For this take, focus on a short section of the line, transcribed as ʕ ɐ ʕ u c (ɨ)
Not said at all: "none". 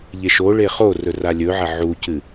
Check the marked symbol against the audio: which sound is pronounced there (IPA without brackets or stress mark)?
ɨ